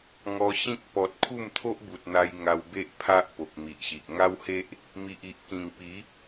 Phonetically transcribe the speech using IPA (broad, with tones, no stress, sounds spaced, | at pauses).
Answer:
ŋ ɔ˧ ɕ ĩ˦ k̚ p ɔ˨ t̚ kʰ u˥˧ m t̪ʰ o˦ ʔ b u˨ t̚ n̪ a˧ j ŋ a˧ w b e˦ ʔ pʰ a˦ ʔ p o˨ k̚ m i˨ ʔ ɕ i˨ ʔ ŋ a˦ w h e˦ ʔ | m i˨ ʔ i˨ ʔ k ĩ˨˩ ŋ p i˨˦